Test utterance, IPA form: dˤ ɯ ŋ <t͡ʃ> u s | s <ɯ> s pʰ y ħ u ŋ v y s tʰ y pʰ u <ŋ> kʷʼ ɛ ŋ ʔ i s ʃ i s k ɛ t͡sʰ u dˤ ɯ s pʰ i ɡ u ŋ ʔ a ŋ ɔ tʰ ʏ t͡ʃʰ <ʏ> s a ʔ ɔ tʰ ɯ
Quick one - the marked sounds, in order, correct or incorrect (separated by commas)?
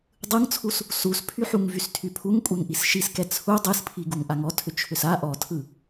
incorrect, incorrect, correct, correct